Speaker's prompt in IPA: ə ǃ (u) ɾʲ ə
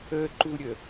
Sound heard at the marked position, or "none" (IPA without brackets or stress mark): u